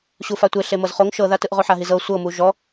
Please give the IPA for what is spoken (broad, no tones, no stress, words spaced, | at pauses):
ɕufatʷe ɬemɤzχoŋ ʃɤðatɯʔ ʁoħaɦizɤ sʷɤmu ʒɔ